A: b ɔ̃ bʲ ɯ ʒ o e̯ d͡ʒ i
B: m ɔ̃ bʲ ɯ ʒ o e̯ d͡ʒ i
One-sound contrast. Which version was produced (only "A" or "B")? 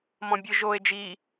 B